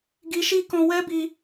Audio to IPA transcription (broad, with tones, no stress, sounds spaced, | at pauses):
ɡ i˧ ʃ i˦ k ɔ̃˧ w ɛ˦ b i˧